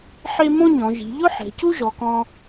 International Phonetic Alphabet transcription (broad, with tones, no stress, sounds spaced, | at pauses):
ħ e˥ m õ˥ ɲ ɔ̃˩˧ ʒ i̤˩˧ ʎ ʊ˥ ħ ɛ̤˩˧ c u˥ ʒ ɔ˩˧ k ɔ̃˧